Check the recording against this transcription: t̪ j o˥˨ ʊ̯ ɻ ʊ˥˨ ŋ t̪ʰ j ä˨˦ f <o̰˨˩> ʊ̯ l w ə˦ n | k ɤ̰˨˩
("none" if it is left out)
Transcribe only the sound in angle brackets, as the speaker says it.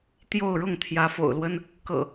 o̰˨˩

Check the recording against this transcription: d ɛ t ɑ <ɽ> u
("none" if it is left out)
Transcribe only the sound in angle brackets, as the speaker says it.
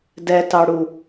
ɽ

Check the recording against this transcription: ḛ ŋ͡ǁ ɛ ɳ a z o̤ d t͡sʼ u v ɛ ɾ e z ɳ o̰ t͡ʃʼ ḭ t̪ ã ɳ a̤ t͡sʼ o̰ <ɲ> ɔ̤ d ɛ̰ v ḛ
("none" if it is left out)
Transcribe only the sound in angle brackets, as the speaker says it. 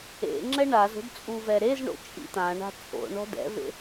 ɳ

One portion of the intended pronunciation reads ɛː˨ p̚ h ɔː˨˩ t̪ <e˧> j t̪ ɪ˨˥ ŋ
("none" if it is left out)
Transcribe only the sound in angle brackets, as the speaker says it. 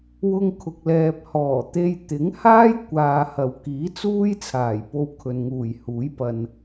e˧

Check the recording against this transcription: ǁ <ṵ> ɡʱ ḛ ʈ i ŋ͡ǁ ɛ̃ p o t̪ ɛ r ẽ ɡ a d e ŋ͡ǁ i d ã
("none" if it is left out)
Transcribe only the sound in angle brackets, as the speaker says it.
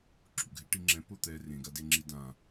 ṵ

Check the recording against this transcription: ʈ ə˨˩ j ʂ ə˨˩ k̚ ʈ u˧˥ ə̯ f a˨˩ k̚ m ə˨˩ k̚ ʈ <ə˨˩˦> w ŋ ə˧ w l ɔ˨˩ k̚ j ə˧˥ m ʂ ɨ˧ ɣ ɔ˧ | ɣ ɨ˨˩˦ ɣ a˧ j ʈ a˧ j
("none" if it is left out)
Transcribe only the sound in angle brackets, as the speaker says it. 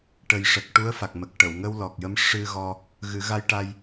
ə˨˩˨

